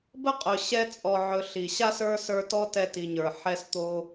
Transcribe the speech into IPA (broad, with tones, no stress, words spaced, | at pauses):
bə˥qʼɵ˨ ɕɛ˥ t͡sʼɔ˨ʕɵ˨ ɬi˩ɕa˥s ə˞˥sə˞˦tɔ˥ tɛ˦ti˨ɲə˞˩ ħɛ˦st̪o˦